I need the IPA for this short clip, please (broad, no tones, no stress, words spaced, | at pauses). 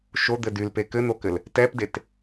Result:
ʃod̪ɘ dylpe kɘn̪okɘl | tɛpdet